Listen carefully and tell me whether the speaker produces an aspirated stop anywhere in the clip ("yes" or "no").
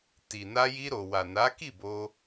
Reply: no